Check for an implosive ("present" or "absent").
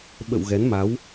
present